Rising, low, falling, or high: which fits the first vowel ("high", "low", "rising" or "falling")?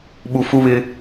low